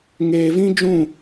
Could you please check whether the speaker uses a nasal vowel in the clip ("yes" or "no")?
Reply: yes